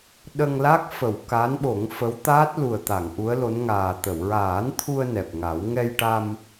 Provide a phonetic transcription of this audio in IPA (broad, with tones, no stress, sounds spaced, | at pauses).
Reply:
ɗ ə˧ ŋ l a˦˥ k̚ f ə˨˩˨ w k a˧˥ n ɓ o˨˩˦ ŋ f ə˧˥ w t̪ aː˦˥ t̚ l u˨˩ ə̯ t̪ a˨˩˨ ŋ ʔ u˧˥ ə̯ l o˧˥ n ŋ aː˨˩ t̪ ə˨˩˨ w ɹ aː˨˩˦ n t̪ʰ u˧ ə̯ n ɛ˨˩ p̚ ŋ a˨˩˦ w ŋ ɛ˧ j ʈ a˧ m